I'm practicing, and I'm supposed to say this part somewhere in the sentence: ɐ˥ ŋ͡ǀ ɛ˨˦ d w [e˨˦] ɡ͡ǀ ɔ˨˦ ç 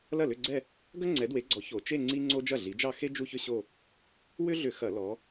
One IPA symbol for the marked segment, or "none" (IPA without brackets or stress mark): e˨˦